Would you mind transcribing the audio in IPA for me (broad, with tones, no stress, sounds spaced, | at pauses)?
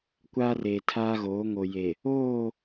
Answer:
kʷ aː˦ r eː˨ tʰ aː˦ ɣ oː˨˦ ŋ o˨ j e˨ | oː˦˨